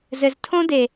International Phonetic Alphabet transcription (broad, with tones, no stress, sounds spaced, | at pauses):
z ɘ˨ z tʰ õ˦ d e˨